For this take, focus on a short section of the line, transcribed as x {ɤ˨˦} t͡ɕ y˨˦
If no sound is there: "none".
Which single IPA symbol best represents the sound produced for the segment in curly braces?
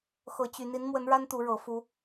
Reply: ɤ˨˦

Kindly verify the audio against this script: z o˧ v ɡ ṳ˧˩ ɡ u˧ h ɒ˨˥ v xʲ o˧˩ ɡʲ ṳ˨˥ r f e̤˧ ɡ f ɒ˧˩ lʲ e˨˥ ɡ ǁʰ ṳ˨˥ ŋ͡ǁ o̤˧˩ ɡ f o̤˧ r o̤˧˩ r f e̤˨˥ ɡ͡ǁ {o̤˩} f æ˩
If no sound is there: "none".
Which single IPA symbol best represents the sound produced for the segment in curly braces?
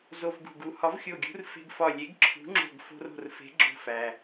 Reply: o̤˧˩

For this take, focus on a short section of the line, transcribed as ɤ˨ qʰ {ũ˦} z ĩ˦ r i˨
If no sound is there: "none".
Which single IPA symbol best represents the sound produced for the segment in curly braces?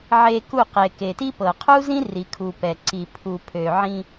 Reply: u˦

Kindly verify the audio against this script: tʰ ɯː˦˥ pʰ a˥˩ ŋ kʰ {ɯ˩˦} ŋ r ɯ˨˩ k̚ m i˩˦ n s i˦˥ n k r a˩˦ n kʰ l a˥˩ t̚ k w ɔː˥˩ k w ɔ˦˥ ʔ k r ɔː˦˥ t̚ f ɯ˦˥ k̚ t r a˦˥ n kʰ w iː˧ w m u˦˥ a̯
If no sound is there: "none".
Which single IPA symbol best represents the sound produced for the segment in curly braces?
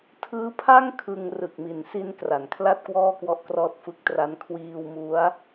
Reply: ɯ˧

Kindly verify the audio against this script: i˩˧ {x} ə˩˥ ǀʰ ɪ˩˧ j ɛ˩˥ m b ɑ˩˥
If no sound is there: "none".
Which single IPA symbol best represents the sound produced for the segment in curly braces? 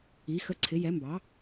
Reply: x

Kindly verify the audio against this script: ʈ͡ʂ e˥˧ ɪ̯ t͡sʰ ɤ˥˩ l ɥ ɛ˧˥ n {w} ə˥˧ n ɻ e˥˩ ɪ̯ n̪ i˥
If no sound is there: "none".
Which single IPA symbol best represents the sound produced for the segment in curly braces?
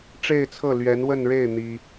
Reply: w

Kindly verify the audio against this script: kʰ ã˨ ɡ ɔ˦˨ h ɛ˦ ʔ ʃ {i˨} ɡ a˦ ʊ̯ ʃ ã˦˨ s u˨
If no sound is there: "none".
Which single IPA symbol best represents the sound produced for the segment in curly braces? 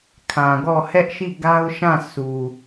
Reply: i˦˨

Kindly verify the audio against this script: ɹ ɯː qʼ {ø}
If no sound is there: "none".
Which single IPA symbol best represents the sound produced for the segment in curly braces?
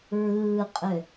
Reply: ø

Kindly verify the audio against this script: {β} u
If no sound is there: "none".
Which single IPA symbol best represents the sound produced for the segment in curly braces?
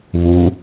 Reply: β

